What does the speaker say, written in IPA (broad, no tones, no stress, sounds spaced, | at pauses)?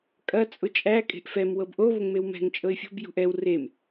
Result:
kʼ ɐ t͡sʼ ʊ t͡ʃʼ æ kʼ e̤ ʔ f ɛ m w ɤ b ʔ o β ʊ ŋ m e w m ɛ̤ ŋ t͡ʃʼ ɤ ɪ̯ fʲ o̤ b j ṳ ʔ ɛ w r e m